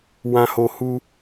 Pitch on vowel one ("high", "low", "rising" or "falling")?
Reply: high